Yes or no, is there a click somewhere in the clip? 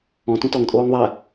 no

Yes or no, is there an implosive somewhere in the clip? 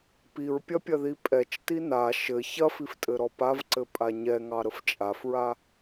no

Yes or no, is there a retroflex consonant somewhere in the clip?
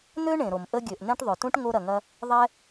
yes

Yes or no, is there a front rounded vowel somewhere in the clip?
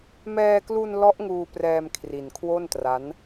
no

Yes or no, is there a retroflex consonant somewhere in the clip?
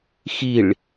yes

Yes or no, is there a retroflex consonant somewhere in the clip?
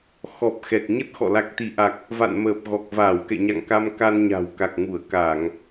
no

